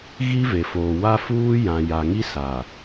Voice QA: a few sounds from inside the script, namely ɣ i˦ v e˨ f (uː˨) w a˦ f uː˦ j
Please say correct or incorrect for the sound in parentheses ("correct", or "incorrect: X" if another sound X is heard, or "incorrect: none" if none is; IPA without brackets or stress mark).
incorrect: oː˨